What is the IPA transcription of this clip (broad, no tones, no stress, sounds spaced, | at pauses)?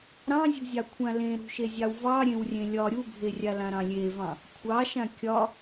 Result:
ɾ ɑ̃ zʲ ṳ zʲ ɑ kʷʰ ã l ẽ ɾ ṳ ʃ e zʲ ɑ w v ɑ ɾʲ ẽ w rʲ ẽ lʲ ɒ ɾʲ u bʱ e rʲ a l ã ɾ ɑ̃ lʲ e v ɑ̃ | kʷʰ ɑ ʃ ã kʲ ɒ